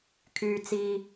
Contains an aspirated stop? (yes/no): yes